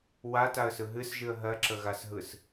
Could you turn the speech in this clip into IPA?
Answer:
w a t a ə̯ s ɯ ɦ ɨ s ʒ ɨ ə̯ ɦ ɜ ǁ ə ɣ a s ɦ ɯ s

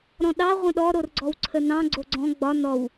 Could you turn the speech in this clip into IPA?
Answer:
ɾ ɔ̃ ɗ ɑ ʁʷ ə̃ ɗ ɔ ɾ o r ɡ͡ǀ ɔ w ǀʰ ə n ɑ̃ ɡ͡ǀ o ɡ͡ǀ ɔ̃ ɡ͡b ɒ n ɔ w

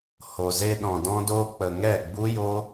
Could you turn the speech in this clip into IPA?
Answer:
h o˨ z e˧ ɗ ɔ̃˨ d ɔ̃˧ d oː˧ k͡p ə˨ ŋ ɛ˦˨ ɡ͡b u˦ j o˦

